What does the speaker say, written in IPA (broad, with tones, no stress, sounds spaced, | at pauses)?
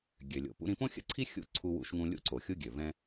ɡʲ ø˩ lʲ o̰˩ p ṵ˧ ɾ ĩ˧ p õ˥ xʲ ə̰˥ ǀʰ i˥ xʲ ṵ˥ ǀʰ u˧ w ṵ˧ ʃ ŋ ũ˧ lʲ ṵ˧ ǀ o˩ xʲ u˧ ɡʲ ø˩ v ɛ̃˧